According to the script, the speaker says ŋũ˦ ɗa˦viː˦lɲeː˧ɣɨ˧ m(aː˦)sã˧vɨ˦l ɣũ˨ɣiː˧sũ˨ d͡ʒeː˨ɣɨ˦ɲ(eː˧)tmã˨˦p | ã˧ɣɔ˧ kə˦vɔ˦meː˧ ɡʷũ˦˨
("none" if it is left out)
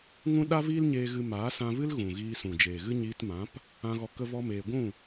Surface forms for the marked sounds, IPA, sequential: aː˨˦, iː˧

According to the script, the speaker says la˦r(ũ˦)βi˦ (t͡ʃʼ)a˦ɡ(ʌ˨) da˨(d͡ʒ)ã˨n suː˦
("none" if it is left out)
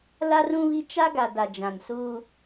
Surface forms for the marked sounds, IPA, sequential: ũ˦, t͡ʃ, a˨, d͡ʒ

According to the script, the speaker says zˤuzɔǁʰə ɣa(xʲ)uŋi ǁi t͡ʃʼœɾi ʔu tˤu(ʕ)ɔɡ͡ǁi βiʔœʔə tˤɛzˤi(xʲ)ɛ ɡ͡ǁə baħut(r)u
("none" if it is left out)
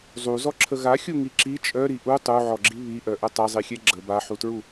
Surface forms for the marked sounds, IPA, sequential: xʲ, ʕ, xʲ, ɹ

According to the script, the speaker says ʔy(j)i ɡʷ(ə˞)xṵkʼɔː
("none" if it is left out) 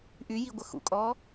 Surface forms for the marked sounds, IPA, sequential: j, ə

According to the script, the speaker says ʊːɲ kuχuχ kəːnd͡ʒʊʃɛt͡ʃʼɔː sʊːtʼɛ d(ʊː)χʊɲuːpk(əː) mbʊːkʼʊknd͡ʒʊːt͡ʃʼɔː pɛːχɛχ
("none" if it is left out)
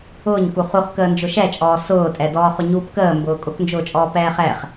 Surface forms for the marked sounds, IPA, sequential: ɔː, əː

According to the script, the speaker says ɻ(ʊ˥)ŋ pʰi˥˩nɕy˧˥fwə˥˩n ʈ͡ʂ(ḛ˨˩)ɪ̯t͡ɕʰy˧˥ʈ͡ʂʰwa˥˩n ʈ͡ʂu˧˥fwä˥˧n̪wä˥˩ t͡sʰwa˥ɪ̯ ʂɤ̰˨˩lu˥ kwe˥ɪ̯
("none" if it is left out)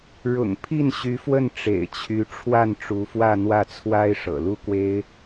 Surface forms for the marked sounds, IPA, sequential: ʊ̰˨˩, ḛ˨˩

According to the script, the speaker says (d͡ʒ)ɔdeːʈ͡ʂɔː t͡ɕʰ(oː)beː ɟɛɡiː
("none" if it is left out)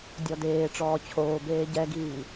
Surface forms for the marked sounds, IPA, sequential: dʲ, oː

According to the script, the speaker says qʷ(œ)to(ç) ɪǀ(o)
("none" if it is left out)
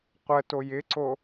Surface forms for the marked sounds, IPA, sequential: ə, j, o

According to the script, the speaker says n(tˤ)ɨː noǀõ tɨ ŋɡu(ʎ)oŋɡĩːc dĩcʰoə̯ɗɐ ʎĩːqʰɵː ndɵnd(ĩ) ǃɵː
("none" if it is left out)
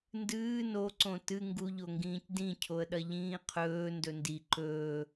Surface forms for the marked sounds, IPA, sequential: d, ʎ, i

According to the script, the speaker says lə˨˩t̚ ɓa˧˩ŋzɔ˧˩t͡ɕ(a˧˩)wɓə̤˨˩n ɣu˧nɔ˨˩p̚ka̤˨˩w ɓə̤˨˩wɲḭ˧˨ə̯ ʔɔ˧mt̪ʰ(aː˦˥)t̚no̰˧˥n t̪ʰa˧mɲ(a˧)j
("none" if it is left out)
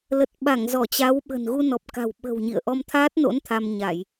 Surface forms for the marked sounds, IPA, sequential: a˨˦, aː˦˥, a˧˩˨

